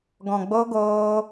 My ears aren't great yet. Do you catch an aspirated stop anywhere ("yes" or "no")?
no